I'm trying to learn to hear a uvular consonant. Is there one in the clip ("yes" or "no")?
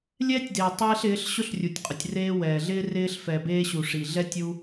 yes